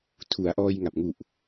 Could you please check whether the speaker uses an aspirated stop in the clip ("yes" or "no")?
yes